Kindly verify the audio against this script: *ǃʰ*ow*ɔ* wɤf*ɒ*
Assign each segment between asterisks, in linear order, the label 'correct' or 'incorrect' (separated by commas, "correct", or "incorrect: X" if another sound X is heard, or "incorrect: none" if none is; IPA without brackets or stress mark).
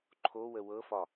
correct, incorrect: ə, correct